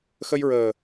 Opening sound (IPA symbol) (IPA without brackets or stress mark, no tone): x